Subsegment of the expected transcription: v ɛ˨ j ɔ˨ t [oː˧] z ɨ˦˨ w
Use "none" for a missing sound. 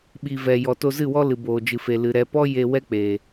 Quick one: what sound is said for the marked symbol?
o˧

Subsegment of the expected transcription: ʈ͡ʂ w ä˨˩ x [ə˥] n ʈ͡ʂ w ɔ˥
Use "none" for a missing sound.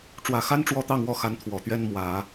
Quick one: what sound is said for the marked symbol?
a˥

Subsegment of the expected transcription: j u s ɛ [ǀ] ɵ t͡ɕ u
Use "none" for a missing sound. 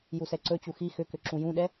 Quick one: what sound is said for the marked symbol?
ǀ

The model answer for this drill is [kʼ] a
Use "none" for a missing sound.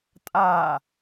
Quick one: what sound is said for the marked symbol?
tʼ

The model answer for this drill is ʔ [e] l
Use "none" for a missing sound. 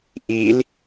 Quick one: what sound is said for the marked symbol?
i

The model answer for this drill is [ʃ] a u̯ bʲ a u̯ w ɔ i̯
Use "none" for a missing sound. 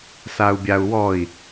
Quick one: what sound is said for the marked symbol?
s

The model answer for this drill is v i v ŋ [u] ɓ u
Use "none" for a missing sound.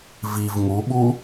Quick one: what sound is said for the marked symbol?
u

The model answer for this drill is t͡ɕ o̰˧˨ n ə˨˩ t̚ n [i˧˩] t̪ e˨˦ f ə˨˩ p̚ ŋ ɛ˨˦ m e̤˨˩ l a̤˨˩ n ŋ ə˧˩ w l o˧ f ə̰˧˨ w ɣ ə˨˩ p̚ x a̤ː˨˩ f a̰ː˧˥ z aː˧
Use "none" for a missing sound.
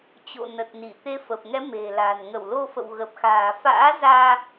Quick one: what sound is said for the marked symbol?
i˧˩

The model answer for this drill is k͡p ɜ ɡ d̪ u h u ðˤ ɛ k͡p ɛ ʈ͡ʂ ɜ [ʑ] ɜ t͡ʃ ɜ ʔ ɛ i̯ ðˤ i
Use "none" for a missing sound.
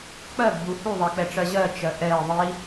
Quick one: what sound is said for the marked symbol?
ʑ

